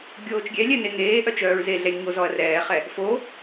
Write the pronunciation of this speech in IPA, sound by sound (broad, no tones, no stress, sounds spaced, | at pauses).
ɡʲ oː t͡ʃ ɡʲ ɛ lʲ ɛ n e ŋ eː ʔ œ t͡ʃ œː ɹ z e ɮ ɛ lʲ ɲ o z ɔ ɐ̯ r ɛː χ ɛ | f o